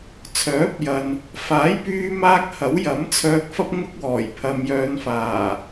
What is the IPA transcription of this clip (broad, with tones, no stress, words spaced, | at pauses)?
t͡sʰœː˨˥p̚jɐ˨n | faː˨˥jpyː˧maː˧k̚ hɐ˨˥w jɐ˨˥mt͡sʰœː˧k̚fɐ˥p̚ ŋʊ˥k̚wɔː˨˩j pʰɐ˨m jœː˨˧nfaː˨˩